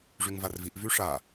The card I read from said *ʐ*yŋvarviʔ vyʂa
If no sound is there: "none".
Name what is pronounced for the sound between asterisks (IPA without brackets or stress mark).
ʐ